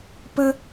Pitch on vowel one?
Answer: high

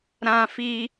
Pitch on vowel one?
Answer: high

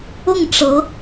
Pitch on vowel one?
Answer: falling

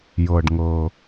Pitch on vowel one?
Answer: low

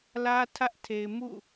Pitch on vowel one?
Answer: high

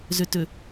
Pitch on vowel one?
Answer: low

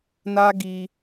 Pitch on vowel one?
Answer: high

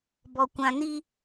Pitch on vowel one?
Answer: low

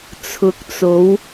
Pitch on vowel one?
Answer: rising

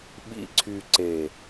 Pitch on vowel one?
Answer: low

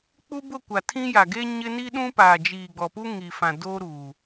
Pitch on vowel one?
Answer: high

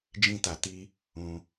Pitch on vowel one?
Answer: high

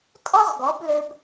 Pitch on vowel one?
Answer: high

